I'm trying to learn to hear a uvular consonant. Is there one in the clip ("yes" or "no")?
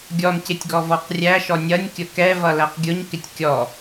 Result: yes